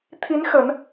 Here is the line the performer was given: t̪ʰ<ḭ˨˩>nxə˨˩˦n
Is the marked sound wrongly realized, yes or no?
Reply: yes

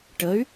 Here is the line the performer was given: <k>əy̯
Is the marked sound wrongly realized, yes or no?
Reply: yes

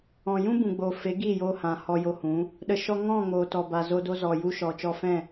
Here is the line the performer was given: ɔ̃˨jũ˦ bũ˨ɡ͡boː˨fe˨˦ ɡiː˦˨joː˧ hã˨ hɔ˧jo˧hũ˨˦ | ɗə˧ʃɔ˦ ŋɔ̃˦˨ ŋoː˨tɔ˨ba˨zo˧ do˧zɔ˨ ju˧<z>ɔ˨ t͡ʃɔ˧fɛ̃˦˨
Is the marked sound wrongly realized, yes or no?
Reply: yes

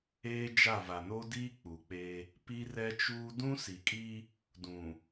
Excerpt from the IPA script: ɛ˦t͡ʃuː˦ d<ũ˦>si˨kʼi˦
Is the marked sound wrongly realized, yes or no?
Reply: no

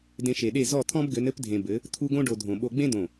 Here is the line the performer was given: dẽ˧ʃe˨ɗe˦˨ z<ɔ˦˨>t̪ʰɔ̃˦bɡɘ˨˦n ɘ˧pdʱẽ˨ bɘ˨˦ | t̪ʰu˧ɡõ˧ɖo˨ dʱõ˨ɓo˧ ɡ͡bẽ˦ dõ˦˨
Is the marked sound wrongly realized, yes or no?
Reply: no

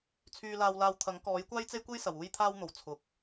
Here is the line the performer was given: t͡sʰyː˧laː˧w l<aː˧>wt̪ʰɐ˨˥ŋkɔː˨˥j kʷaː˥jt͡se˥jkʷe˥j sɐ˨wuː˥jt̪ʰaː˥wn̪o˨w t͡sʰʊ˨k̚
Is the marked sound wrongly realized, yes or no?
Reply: no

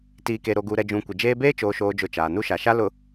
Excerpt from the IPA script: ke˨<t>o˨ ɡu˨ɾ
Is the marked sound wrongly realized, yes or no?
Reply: yes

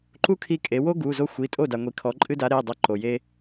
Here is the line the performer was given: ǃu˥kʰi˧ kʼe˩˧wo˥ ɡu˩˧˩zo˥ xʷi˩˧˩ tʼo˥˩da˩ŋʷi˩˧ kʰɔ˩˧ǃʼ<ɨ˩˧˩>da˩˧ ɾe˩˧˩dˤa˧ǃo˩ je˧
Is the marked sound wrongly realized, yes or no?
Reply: yes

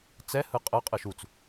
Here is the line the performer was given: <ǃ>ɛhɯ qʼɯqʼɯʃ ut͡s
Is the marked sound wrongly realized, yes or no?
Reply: yes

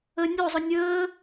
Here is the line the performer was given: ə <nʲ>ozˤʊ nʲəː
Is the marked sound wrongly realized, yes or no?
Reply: no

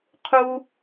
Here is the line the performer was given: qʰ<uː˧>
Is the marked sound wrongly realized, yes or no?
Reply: yes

